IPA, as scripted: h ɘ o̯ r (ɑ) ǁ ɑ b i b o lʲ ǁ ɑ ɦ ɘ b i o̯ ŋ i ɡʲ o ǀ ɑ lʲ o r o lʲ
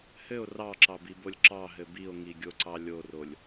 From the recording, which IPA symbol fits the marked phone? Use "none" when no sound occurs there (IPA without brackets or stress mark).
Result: ɑ